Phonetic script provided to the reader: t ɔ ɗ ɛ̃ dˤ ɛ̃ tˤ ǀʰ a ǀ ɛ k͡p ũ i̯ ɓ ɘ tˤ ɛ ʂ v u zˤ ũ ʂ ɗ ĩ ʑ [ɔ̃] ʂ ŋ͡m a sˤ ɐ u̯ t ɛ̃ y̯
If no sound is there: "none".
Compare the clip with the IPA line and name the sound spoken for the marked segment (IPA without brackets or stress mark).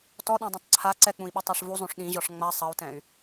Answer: ɔ